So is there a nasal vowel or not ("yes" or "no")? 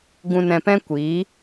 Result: yes